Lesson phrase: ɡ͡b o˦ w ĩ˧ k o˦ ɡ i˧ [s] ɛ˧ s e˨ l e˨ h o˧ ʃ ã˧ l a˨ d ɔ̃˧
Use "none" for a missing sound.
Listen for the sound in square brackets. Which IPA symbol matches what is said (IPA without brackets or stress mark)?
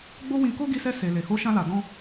s